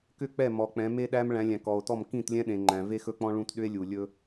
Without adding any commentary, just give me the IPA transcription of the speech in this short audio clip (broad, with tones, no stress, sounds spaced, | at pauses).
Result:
k ʏ˦˨ k͡p ɛ˦˨ m ɔ˨ k͡p ɛ̃˨˦ m e˦ ɗ æ˦ m ɭ æ̃˨˦ lʲ æ̃˨ k ɔ˨ o̯ t ɔ˦˨ m k ĩ˦˨ t lʲ ɛ̃˦ ɗ ẽ˨ ŋ͡ǃ æ̃˨ v e˦ x ɵ˦ k͡p ɔ̃˦ ɭ ũ˦ t ɗ ʏ˦ e̯ lʲ u˨ lʲ ɵ˦